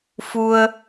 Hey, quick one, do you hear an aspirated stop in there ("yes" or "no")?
no